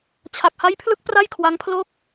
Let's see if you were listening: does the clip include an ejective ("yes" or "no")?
no